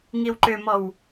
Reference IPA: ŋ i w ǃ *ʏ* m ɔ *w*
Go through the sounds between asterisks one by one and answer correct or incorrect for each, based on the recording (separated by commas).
correct, correct